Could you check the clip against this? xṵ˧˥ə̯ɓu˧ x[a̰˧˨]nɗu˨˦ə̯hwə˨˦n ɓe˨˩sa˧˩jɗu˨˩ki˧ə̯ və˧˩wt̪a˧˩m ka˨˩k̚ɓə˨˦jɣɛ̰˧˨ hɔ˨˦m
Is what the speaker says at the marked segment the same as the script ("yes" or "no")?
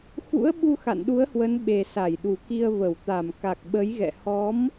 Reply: yes